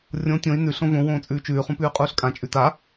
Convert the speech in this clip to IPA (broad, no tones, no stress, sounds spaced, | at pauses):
rʲ õ tʲ õ i̯ n ʉ ɬ õ v õ w õː t͡sʼ ʉː t͡ʃ ʉː χ ũ p ʉː qʼ uː ɬ kʼ ã t͡ʃʼ ʉ t a